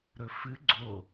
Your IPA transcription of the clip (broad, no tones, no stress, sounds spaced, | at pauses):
ɾ ɵ f ɨ ɡ͡ǀ o